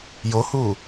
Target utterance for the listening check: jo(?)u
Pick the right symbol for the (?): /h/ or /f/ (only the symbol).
h